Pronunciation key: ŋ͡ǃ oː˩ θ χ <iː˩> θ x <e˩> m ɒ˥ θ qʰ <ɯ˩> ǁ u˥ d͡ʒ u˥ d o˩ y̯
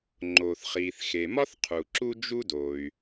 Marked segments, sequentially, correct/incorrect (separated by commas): correct, correct, incorrect